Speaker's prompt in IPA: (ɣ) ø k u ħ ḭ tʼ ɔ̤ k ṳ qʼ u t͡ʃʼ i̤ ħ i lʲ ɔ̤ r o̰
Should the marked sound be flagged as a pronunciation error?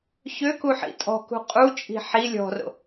yes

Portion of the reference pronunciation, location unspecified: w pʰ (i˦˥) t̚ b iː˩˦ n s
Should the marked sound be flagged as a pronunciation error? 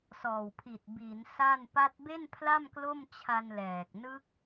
yes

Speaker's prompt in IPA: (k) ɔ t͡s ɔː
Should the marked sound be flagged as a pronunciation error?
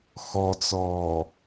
yes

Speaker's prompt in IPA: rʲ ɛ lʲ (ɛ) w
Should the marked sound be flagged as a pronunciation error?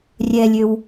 yes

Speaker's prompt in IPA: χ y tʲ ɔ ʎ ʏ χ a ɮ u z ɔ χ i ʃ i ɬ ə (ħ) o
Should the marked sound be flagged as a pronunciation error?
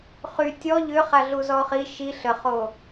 yes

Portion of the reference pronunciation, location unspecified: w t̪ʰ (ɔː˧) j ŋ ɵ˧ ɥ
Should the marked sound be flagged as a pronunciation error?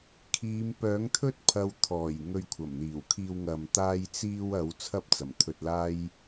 yes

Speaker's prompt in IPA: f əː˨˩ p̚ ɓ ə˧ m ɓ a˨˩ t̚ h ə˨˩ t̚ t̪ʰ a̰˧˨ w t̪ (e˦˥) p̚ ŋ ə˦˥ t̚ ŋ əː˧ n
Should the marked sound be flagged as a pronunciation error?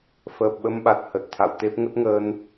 no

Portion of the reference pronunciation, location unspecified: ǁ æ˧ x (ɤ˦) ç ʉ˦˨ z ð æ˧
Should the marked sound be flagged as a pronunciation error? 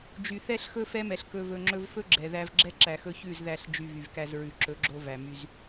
yes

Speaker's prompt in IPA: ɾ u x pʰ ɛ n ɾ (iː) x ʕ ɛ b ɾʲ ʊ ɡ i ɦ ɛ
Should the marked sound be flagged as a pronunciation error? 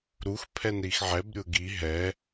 yes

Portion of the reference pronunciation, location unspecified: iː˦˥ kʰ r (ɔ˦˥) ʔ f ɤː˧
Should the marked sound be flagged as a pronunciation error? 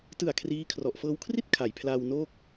yes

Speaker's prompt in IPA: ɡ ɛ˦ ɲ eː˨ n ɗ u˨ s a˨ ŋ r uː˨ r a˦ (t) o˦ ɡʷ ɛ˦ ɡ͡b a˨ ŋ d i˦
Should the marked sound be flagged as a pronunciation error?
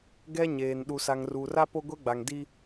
yes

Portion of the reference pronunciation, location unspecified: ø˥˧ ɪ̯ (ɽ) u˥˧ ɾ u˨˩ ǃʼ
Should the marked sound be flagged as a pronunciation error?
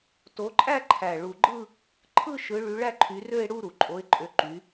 no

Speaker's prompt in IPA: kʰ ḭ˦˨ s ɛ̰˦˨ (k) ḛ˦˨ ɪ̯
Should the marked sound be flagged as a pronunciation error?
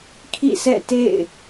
yes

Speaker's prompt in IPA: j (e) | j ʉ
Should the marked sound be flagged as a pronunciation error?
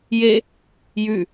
no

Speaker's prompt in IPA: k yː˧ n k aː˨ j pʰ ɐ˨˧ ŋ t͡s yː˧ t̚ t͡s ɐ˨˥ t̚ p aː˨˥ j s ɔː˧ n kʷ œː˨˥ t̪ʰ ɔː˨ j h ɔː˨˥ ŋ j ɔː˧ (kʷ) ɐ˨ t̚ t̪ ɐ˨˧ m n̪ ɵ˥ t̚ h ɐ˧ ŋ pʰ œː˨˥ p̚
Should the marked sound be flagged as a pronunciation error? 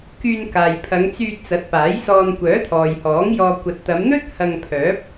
no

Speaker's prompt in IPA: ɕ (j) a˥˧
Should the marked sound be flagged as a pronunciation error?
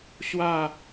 yes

